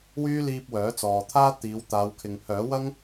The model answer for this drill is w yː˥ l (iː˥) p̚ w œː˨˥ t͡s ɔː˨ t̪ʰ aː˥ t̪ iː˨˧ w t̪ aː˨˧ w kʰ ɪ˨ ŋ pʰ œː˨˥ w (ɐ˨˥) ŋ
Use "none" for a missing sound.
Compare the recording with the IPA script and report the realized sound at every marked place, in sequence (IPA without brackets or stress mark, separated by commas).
iː˧, ɐ˥